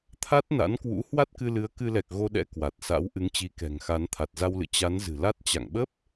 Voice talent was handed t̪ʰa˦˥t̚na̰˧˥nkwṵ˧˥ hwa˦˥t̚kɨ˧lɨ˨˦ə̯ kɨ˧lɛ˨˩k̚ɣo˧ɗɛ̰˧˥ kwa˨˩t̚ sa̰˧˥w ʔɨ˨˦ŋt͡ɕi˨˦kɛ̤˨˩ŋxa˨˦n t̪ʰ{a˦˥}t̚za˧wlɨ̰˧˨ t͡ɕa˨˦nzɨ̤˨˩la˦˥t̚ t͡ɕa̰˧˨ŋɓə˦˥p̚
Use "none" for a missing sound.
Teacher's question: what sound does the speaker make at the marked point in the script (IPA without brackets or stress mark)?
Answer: a˨˩